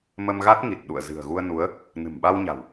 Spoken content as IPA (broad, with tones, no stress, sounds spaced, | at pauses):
m ə˧ m ɣ a˦˥ t̚ ŋ i˨˩ t̚ ɗ ṵ˧˨ ə̯ z ɨ̤˨˩ ə̯ ɣ u˧ ə̯ n u˨˦ ə̯ | n ɨ̤˨˩ m ɓ a˧ w ɲ a̤˨˩ w